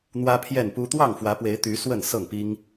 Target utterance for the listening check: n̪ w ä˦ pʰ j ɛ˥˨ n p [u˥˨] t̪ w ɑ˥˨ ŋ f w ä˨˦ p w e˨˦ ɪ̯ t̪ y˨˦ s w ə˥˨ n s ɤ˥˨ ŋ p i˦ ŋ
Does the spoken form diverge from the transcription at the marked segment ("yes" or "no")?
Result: yes